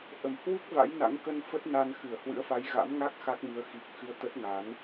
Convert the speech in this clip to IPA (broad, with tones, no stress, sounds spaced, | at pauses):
ʔ ə˧˩ m h w u˦˥ k̚ v a̰˧˥ j n a̰˧˥ ŋ k ə˧ n f ə˦˥ t̚ n a˧ n x ɨ˧˩ ə̯ h w ɨ̰˧˥ ə̯ f a˨˦ j ɣ a̰˧˥ m ŋ a˦˥ k̚ x a˦˥ k̚ m ɨ˨˦ ə̯ x i˨˩ k̚ x ɨ˧ ə̯ t̪ ə˦˥ t̚ ŋ a˨˦ n